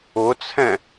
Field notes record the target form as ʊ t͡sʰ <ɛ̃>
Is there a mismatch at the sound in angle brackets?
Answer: no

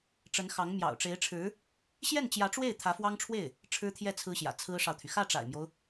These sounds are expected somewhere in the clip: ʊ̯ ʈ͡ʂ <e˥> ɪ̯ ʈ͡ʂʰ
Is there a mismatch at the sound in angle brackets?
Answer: yes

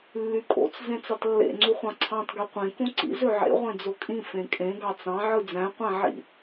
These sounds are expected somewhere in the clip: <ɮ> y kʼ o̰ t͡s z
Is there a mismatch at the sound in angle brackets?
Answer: yes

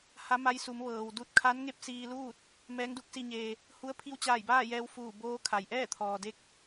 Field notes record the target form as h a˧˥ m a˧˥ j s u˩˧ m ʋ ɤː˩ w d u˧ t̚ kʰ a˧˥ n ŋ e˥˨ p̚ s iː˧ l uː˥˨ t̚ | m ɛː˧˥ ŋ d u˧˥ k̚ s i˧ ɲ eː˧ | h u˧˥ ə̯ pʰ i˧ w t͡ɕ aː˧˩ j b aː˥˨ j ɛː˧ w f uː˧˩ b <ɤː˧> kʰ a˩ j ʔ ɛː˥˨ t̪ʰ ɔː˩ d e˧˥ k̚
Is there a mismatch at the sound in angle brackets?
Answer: yes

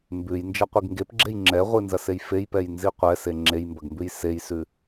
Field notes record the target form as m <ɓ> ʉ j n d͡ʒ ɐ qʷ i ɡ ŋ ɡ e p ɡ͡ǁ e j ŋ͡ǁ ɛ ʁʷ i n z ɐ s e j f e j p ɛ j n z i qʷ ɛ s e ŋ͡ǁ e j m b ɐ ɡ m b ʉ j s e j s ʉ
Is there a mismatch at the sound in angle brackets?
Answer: yes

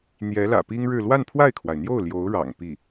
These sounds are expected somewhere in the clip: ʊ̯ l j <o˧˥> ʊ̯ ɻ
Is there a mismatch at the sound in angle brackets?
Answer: no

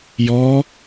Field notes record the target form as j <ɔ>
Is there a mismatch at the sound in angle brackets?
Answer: no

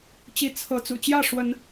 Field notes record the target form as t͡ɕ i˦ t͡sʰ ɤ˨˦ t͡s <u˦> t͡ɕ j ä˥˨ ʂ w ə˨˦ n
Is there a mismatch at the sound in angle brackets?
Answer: yes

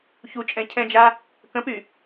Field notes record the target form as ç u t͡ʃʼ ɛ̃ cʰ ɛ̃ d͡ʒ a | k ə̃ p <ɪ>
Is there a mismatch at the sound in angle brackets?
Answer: yes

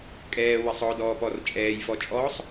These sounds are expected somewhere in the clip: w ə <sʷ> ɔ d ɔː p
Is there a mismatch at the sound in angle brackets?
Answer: yes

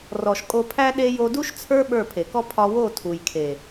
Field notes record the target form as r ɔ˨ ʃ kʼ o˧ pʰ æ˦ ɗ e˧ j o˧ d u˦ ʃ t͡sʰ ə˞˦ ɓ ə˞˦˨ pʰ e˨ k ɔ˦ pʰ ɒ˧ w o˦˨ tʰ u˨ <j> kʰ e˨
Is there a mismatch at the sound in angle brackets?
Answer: no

